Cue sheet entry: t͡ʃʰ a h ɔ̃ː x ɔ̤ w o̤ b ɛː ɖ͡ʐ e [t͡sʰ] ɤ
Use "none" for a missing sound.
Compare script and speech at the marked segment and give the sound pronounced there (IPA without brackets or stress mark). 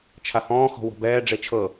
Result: t͡ʃʰ